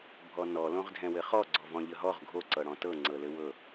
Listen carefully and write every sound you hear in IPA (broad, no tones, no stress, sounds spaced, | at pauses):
bʱ ɔ n ɔ l õ ʁ dʱ ɛ̃ w ɘ χ ɔ ɡ͡ǀ ɔ v ɔ̃ ʎ ə ɦ ɔ ʁ ɡʱ o ǀ ɤ ɽ ɔ̃ t ɤ ŋ͡ǀ ɤ l ɘ w ɤ